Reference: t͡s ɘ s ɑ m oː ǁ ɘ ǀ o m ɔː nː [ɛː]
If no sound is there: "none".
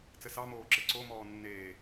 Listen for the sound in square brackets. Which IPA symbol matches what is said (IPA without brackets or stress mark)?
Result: eː